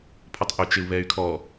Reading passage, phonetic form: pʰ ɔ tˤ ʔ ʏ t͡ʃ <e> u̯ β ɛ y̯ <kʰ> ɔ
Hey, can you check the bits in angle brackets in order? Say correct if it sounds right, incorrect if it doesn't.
correct, correct

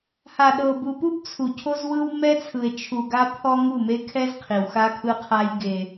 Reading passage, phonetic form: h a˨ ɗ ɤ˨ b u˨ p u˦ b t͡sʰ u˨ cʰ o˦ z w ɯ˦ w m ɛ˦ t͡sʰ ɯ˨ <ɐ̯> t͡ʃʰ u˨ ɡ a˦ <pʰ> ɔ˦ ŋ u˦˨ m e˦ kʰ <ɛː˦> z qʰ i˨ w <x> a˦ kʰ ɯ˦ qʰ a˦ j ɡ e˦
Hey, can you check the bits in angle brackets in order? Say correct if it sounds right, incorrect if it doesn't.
incorrect, correct, incorrect, correct

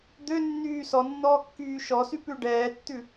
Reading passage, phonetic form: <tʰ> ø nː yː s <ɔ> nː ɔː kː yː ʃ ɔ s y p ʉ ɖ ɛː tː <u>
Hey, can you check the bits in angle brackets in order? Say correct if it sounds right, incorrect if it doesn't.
incorrect, correct, incorrect

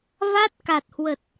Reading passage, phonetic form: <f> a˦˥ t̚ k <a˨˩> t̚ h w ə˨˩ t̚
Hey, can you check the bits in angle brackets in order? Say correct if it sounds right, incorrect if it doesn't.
incorrect, correct

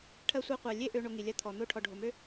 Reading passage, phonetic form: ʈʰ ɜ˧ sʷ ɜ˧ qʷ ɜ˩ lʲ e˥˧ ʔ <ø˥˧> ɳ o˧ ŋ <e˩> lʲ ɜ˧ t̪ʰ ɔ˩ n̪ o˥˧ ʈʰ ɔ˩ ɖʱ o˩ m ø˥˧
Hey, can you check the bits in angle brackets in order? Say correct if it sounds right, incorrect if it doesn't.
incorrect, incorrect

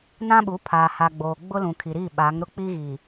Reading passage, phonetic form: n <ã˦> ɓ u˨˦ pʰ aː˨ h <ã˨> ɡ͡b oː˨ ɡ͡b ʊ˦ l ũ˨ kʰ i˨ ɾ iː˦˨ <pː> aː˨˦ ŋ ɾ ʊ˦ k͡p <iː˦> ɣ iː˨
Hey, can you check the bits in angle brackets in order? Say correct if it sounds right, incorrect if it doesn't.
correct, incorrect, incorrect, correct

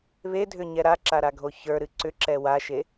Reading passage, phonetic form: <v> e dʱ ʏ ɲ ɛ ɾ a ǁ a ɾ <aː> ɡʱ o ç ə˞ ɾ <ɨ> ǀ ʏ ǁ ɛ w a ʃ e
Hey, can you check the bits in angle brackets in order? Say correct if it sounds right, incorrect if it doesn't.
incorrect, incorrect, correct

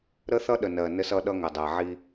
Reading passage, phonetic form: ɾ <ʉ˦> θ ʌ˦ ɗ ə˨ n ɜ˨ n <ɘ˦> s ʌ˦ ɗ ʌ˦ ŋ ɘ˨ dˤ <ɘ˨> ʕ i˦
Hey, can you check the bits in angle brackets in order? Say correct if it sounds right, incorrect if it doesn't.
incorrect, correct, incorrect

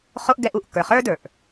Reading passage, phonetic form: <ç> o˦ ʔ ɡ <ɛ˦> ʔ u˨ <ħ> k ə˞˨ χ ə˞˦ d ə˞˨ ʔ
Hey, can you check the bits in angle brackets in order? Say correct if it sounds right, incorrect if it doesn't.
incorrect, correct, incorrect

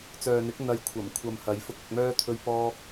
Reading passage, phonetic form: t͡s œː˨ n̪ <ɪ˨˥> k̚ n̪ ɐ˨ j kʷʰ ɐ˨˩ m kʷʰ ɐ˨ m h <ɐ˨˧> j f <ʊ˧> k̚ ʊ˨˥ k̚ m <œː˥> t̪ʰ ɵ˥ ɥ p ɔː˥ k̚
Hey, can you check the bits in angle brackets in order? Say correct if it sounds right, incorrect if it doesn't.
correct, correct, correct, correct

